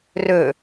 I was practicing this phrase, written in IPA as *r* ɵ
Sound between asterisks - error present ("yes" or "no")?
no